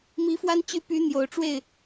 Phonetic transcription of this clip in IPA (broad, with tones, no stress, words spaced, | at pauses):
mi˧˥fwa˥nt͡ɕy˥˩py˧˥ n̪jo˨˩ʊ̯ʈ͡ʂwe˥˩ɪ̯